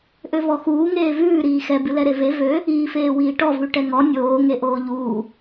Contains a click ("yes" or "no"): no